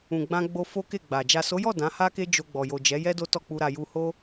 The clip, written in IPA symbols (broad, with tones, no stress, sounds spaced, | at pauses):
ũ˨ ɡ͡b ã˧ ɡ͡b o˧ f o˦ k e˦˨ ɡ͡b a˨ d͡ʒ a˨ s o˨˦ j ɔ˦˨ d ã˨˦ h a˦ k e˦ d͡ʒ o˧ ɡ͡b ɔ˨ j o˨ d͡ʒ ɛ˨˦ j ɛ˦ d o˦ t ɔ˦˨ k͡p u˧ ɾ a˧ j u˧ h o˦